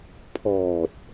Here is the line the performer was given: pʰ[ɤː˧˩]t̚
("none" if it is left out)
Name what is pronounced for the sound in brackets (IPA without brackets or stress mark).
ɔː˧˩